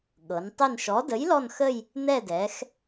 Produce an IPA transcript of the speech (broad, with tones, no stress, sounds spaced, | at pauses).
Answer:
ɠ ɤ˩˧ n tˤ ɪ˦˨ n ʃ ɔ˨˥ d ə˨˥ j l ɔ˦˨ n x ə˦˨ j | n̪ ɛ˦˨ d ɛ˩˧ x